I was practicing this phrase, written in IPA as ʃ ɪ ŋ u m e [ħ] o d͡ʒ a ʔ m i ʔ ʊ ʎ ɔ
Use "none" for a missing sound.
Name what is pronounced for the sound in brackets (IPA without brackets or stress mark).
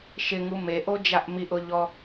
ʔ